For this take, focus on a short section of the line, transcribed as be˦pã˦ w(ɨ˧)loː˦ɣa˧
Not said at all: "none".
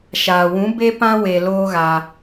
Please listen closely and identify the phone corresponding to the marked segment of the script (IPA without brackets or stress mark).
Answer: e˧